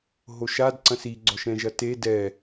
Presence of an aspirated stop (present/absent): absent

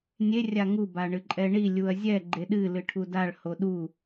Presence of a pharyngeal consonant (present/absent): absent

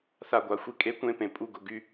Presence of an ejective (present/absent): present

